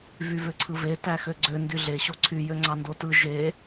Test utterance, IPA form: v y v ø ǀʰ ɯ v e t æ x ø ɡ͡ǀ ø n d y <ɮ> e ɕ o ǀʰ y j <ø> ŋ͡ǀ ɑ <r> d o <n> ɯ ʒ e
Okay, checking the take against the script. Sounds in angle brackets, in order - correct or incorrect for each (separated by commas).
correct, correct, incorrect, incorrect